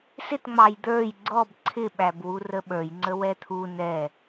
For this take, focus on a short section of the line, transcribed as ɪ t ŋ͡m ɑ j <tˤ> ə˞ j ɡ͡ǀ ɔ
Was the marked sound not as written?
yes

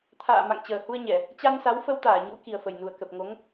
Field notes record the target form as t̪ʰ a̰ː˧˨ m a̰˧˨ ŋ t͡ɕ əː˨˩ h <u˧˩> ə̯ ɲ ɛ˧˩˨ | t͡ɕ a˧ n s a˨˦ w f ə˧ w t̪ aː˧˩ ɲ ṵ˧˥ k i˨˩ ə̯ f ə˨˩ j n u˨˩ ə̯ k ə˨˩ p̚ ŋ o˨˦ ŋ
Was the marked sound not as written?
yes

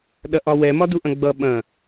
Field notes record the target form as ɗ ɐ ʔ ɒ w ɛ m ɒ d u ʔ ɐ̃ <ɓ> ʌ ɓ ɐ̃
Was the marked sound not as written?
yes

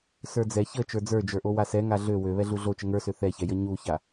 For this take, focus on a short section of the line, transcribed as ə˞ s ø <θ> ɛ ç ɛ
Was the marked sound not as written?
no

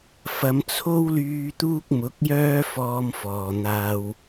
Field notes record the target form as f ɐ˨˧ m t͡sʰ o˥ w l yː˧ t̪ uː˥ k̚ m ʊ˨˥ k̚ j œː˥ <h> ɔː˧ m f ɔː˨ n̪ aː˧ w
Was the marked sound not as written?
yes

